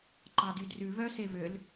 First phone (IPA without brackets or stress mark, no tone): ǃ